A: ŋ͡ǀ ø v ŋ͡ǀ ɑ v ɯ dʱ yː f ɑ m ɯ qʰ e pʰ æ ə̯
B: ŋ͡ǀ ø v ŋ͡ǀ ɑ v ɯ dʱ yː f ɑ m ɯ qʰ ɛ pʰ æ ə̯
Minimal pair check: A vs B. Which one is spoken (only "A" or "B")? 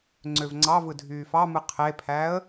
A